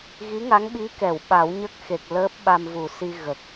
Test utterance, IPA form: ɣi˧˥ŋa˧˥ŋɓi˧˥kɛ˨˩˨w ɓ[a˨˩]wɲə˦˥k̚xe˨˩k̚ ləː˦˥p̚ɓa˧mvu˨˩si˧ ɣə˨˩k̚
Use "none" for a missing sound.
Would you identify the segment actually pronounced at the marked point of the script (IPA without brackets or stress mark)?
a˨˩˦